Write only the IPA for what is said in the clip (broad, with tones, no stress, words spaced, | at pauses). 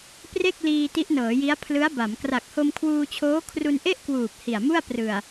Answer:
pre˥˩k̚liː˧ ti˦˥ʔnɤː˩˦ji˦˥a̯ pʰlɯ˦˥a̯ba˩˦m kra˨˩k̚ho˧mkʰwuː˧t͡ɕʰoː˦˥ kʰru˧nʔe˥˩ʔkwuː˨˩p̚ hi˨˩a̯mu˥˩a̯ prɯ˨˩a̯